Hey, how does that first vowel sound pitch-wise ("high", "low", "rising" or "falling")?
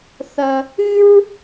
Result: low